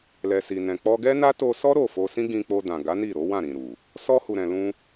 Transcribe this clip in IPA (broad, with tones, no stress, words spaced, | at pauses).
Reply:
lɛ˨si˨nɛ̃˨ k͡pɔ˧ɡɛ˦na˦ to˧sɔ˦ ɾo˦˨fo˧sĩ˦ ɡĩ˧k͡po˧dã˨ ɡa˨˦ni˦˨ɾo˨˦ wã˦˨ɾĩ˨ɾu˨ | sɔ˧hu˨ɾɛ̃˨ lũ˧